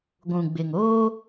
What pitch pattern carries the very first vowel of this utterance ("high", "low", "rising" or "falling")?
low